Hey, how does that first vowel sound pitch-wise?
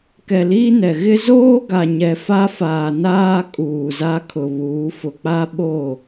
low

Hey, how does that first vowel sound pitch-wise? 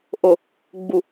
low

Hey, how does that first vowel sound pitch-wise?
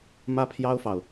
high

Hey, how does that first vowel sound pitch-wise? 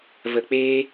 low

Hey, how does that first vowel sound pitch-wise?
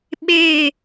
falling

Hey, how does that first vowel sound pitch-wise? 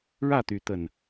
falling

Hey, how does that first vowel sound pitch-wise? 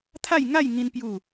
falling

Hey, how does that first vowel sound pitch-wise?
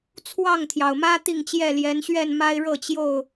falling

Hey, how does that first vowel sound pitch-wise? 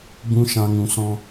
high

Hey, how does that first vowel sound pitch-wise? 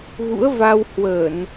rising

